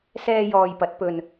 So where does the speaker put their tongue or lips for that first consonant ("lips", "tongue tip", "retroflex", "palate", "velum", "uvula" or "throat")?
tongue tip